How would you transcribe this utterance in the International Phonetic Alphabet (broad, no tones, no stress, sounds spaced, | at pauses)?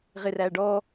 ʁ ɪ r æ ɖ ɔ